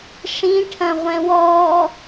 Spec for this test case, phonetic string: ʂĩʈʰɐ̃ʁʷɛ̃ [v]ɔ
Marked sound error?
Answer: yes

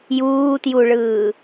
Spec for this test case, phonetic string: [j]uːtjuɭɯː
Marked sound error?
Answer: no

